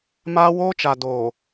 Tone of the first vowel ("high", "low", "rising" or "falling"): high